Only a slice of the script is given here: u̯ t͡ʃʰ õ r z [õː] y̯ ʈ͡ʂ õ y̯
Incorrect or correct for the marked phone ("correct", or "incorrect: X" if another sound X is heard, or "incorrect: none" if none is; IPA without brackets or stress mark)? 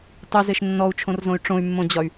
incorrect: õ